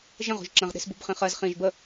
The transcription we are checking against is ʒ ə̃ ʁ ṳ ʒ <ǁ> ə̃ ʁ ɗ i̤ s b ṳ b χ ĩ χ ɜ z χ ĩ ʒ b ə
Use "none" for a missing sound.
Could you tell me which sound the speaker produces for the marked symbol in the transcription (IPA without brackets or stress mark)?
ǁ